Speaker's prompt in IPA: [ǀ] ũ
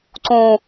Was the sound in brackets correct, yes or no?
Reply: yes